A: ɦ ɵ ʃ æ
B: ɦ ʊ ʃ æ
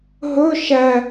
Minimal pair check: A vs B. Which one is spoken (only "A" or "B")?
A